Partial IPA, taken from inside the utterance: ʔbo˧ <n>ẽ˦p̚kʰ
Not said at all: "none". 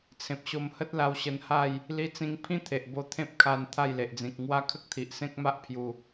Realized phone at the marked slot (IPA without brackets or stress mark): t̪ʰ